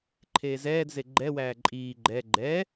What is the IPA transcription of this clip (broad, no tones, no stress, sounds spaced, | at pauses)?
ǃʰ eː z ɛː d z e ɡ͡ǃ ɛ w æː ǃʼ iː ɡ͡ǃ ɛ ɡ͡ǃ ɛ